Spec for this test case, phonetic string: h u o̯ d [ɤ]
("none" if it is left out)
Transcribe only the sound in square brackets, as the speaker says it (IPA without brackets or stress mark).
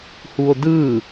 ɯ